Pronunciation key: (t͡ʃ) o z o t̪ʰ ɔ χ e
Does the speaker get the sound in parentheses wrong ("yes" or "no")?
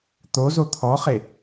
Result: yes